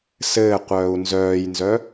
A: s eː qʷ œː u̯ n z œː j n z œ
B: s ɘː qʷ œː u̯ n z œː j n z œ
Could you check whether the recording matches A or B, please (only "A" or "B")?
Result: B